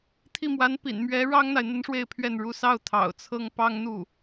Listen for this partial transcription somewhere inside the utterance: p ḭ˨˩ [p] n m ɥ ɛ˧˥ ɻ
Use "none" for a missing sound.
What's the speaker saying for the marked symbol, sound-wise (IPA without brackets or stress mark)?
none